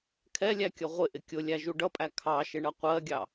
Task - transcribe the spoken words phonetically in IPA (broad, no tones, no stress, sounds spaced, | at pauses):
kʰ ɛ lʲ æ kʲ ʌ ʁʷ ɪ ʔ ɪ kʲ ʊ lʲ æ ʒ u ɖ ʌ pʼ æ kʰ ɑ ʃ ɪ ɳ ʌ qʷ ɜ ɡʲ ɑ